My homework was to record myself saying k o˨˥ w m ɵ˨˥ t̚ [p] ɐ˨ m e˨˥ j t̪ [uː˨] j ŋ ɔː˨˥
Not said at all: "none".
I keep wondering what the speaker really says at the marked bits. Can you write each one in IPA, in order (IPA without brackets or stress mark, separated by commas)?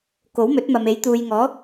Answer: m, uː˨